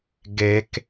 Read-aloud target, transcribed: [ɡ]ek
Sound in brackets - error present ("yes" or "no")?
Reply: no